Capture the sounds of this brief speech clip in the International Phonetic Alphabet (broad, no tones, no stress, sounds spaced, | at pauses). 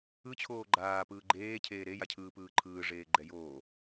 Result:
ɯ t͡ɕʰ oː ɡ͡ǃ aː p ɯː ɡ͡ǃ eː cʰ eː ɾ e j a cʰ ɯː p ɯː ǃʰ ɯː ʐ eː ɡ͡ǃ ɛ j oː